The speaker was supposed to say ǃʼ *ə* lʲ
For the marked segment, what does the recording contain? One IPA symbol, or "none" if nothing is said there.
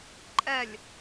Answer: ɛ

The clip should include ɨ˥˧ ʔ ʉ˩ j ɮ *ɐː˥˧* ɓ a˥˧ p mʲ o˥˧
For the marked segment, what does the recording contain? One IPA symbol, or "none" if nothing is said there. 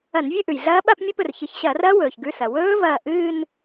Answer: ɐː˦˥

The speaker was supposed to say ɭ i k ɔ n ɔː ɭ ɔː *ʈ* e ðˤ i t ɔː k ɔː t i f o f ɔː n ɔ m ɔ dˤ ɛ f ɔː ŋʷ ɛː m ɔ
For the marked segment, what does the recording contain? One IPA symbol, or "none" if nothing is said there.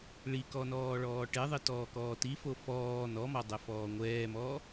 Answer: ʈ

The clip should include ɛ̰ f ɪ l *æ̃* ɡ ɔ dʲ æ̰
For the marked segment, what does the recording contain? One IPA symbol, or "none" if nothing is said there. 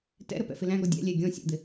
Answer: æ̃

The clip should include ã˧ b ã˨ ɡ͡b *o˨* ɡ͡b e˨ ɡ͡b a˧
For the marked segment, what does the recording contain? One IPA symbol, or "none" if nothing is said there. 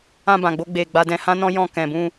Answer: o˧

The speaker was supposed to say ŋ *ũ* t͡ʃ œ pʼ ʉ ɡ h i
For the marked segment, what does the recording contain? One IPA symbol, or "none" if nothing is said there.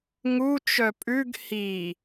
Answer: u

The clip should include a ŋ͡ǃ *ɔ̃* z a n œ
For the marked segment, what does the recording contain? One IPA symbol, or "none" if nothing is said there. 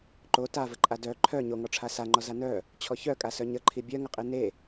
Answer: ɔ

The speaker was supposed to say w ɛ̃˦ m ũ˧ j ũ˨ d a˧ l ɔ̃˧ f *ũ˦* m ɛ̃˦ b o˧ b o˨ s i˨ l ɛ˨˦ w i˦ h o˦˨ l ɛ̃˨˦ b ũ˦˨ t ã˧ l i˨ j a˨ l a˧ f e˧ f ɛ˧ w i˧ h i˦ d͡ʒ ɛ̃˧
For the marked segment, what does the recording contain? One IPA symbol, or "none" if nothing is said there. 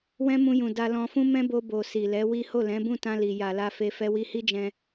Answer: ũ˦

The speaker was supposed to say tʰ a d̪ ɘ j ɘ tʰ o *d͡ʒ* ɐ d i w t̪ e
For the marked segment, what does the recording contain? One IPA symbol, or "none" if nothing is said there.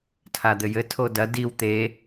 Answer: d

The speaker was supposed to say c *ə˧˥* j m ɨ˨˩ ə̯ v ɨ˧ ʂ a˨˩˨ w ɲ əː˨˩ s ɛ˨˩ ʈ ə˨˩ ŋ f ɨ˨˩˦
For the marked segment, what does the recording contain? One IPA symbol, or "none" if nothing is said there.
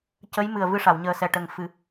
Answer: ə˧˥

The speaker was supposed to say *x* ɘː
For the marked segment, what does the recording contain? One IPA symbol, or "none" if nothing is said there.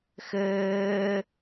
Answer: x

